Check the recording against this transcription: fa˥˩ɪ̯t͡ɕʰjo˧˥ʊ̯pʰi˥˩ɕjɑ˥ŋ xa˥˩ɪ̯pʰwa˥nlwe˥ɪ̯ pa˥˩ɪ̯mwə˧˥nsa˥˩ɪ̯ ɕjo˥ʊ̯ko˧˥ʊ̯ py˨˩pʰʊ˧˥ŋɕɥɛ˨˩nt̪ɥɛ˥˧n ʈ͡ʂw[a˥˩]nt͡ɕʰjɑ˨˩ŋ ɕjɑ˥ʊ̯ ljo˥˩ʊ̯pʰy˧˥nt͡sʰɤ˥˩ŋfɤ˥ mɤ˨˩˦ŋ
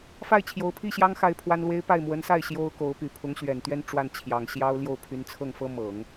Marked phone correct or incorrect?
correct